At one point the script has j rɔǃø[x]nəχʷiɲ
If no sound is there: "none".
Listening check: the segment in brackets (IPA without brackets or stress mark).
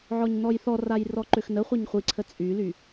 x